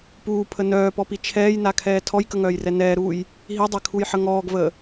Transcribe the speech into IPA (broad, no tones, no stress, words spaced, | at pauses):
puːpʰə nœːpɔpi t͡ʃʰɛːjnakʰɛː tʰɔjkəŋœːjrɛ nɛːɾuːj | ɦidˤɛkʰujħə ŋɔːɡvəː